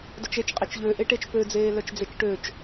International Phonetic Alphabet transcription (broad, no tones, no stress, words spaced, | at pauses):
dət͡ʃet͡ʃqʼit͡ʃ ʎøʔeʈet͡ʃ pød͡zeː lœt͡ʃd͡zet͡ʃʈøt͡ʃ